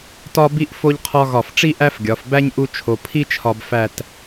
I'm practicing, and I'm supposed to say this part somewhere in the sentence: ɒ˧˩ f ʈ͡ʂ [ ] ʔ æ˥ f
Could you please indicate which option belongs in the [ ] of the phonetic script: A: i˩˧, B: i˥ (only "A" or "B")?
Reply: B